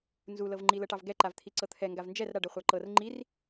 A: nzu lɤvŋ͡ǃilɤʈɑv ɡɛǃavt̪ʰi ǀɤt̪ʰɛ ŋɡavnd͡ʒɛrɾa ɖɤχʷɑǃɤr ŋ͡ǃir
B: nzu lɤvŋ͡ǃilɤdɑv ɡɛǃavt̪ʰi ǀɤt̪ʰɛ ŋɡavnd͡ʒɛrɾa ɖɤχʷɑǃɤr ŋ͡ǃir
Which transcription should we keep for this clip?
A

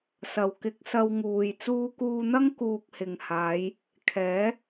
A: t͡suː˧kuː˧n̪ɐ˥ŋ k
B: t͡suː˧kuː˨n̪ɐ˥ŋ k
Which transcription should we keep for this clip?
A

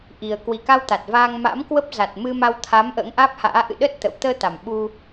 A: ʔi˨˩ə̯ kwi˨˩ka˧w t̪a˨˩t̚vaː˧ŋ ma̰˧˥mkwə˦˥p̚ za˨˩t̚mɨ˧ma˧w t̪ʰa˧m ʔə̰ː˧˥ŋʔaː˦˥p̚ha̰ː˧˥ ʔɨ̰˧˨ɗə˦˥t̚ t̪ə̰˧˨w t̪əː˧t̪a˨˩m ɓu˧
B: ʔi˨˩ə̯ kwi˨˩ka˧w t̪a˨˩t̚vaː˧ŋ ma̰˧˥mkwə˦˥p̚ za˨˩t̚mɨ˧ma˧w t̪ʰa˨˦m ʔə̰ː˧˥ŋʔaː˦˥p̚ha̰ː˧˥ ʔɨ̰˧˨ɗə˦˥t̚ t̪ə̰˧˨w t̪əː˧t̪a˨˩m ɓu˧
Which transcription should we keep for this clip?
B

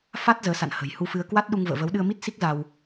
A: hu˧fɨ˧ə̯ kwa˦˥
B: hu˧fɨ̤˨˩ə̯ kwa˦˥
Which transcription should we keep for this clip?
A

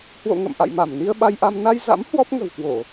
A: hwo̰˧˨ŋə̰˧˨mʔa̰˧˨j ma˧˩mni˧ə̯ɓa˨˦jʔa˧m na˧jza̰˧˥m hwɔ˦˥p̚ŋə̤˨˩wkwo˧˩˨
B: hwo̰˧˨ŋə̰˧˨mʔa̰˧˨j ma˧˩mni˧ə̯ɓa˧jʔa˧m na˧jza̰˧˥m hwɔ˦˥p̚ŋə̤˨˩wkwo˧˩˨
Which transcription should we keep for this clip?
B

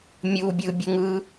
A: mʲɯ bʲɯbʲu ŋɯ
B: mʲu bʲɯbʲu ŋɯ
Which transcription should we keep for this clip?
B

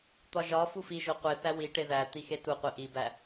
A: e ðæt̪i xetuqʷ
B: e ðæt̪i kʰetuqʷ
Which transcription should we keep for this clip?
A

